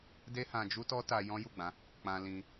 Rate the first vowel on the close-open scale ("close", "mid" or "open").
mid